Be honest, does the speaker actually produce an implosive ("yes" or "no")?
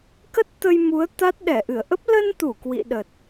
yes